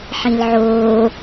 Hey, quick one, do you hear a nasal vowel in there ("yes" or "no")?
yes